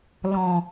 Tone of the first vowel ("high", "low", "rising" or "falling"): low